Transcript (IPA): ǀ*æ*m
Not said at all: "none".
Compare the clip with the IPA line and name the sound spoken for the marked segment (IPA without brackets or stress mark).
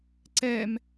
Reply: ɛ